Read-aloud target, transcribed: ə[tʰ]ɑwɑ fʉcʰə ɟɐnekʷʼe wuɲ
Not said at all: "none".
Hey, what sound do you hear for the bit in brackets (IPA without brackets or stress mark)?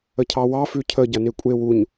cʰ